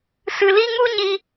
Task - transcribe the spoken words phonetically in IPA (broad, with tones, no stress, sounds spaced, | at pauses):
s ɨ˧ l i˦ ŋ u˦ ɲ i˧